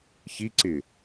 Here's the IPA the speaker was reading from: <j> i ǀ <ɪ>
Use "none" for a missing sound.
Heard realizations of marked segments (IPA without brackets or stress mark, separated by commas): ç, ɪ